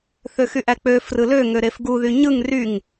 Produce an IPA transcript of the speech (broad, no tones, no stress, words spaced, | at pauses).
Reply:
θøxyʔæk͡pø frɯlø ŋøɾefɡu ðyɲɯŋ ryŋ